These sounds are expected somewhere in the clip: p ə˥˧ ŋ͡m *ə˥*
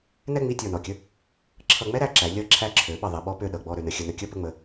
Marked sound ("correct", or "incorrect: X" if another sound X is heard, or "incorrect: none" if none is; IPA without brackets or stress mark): incorrect: ə˧